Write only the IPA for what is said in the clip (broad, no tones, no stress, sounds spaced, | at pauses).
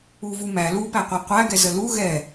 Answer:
u v u m æ l u p æ qʷ æ qʷ æ ɡ ɛ z ə l u ɣ ɛ